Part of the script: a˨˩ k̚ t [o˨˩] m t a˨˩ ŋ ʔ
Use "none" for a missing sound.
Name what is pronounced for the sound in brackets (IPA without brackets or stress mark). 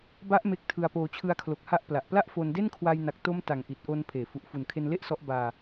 o˦˥